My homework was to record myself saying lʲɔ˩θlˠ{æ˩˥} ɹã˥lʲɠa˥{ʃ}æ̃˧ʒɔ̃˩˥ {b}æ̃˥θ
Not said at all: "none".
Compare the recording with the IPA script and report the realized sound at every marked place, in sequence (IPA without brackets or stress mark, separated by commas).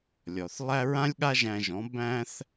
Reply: æ˥, ʒ, b